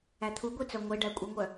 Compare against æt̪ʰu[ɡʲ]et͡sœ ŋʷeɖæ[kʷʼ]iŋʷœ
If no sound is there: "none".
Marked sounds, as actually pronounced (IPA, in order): ɡʷ, kʷʼ

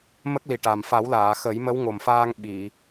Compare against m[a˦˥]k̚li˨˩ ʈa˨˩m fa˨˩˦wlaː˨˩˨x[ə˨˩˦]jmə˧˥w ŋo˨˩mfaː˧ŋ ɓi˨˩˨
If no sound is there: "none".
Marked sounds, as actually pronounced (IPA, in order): ə˦˥, ə˨˩˦

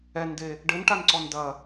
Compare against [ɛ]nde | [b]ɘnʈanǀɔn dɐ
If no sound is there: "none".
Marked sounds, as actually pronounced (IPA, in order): ɛ, ɖ

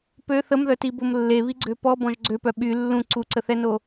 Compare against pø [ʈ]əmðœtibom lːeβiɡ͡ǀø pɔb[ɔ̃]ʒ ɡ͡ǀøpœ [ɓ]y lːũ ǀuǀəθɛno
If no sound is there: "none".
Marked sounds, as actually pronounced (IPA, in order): θ, ɔ̃, ɓ

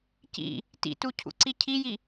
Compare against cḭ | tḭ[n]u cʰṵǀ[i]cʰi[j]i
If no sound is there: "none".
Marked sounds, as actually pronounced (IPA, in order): t, i, j

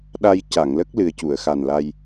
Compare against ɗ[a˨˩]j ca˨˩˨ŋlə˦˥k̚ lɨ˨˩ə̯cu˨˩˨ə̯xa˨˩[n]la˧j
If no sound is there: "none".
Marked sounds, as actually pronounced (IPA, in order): a˧, n

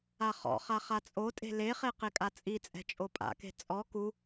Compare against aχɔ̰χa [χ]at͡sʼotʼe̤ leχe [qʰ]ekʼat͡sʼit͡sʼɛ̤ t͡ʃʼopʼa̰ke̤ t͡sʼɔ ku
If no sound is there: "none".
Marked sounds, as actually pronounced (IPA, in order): χ, q

